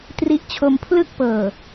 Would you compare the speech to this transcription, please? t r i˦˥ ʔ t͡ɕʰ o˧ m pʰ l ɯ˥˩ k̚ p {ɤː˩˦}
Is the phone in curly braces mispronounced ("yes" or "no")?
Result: yes